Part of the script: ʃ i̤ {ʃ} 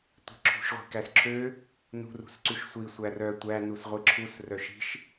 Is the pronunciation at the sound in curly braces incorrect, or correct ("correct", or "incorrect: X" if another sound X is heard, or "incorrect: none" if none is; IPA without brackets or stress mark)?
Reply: correct